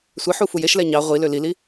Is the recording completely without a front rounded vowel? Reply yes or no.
no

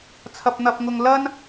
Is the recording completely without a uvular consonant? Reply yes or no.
yes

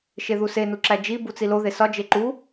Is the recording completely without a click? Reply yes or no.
no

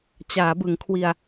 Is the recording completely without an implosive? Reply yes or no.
yes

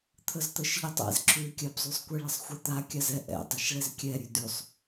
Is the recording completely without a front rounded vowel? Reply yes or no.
yes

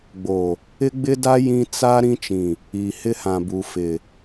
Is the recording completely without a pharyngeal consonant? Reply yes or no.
yes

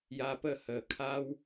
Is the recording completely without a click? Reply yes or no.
yes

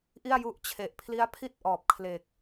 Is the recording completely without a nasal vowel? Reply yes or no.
yes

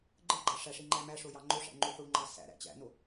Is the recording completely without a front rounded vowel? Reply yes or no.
yes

